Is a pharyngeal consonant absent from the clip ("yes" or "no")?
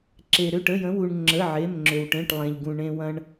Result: no